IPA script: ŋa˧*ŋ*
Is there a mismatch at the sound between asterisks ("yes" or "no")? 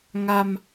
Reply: yes